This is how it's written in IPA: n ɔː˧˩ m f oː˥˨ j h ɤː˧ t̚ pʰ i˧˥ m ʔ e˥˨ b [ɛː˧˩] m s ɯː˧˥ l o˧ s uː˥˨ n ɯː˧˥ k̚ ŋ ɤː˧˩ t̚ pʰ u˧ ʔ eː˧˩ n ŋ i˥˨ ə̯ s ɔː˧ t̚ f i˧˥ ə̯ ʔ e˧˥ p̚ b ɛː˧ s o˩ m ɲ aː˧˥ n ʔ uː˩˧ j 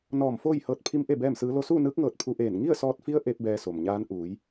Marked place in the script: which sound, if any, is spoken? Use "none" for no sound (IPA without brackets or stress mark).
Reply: ɛː˥˨